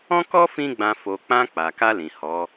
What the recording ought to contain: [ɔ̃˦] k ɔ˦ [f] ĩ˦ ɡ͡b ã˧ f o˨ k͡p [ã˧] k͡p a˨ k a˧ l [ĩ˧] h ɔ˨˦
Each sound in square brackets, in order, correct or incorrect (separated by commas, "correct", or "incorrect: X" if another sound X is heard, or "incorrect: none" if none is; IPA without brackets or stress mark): correct, correct, correct, incorrect: ĩ˨